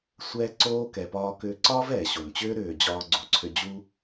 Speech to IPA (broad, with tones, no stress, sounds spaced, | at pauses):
sʷ ɛː˦ ǀ oː˦ k ɛ˧ p ɒː˦ k ʏː˧ ǀ ɒː˦ v ɛː˨ ɕ o˨ n t͡ɕ ʏː˦ ɾ ʏː˨ d͡ʑ ɒː˧ ɡ͡ǀ u˨ ǀʰ ʏ˧ d͡ʑ u˦